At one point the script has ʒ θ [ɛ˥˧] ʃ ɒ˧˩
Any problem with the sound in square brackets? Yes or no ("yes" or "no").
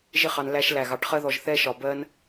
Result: no